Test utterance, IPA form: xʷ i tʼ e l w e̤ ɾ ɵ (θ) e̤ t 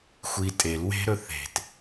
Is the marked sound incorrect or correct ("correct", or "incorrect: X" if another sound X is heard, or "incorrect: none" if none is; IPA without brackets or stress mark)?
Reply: correct